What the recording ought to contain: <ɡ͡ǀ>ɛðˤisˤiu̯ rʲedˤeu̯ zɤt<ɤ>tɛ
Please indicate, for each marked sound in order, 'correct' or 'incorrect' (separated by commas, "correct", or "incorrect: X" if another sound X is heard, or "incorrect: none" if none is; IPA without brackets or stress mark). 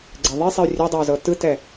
correct, incorrect: ɯ